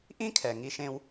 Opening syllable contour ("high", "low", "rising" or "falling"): high